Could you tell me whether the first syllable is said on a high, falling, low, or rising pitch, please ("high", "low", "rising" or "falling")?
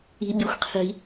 high